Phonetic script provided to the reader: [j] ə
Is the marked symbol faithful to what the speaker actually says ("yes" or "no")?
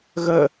no